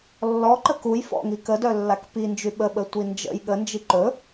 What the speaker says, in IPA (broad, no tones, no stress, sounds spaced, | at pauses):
lː ɔ ǃ ə k u j f ɔ̰ ŋ i k ə d œ lː a k p i n d͡ʒ y ɓ ə ɓ ə tʷ i n d͡ʒ ə̰ j ɠ ə n d͡ʒ i ǃ ɵ